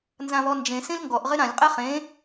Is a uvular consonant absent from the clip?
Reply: no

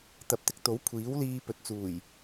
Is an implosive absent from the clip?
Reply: yes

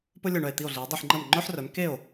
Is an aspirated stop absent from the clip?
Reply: yes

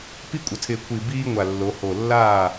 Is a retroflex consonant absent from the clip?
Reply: yes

